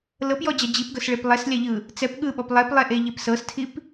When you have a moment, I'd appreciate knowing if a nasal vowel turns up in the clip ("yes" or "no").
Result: no